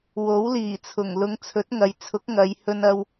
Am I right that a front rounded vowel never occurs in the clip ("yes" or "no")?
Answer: yes